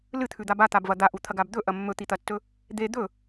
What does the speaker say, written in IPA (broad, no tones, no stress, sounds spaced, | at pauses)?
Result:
l ɨ t̪ʰ ʉ d̪ a b a t̪ a b v ɐ d̪ a ʔ u t̪ʰ ɐ ɡ a b d̪ ɵ ʔ ɐ mː ɵ t̪ i t̪ ɐ tː ɵ | d̪ e d̪ ɵ